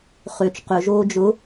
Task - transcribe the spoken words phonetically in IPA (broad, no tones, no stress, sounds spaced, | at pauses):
χ ø t͡ʃ q ʏ ʒ oː d͡ʒ ʊ